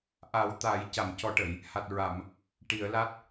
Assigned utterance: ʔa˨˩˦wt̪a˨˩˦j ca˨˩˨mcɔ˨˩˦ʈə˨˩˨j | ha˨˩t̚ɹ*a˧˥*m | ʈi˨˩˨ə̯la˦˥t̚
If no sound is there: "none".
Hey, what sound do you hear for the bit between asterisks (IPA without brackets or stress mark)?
a˨˩˨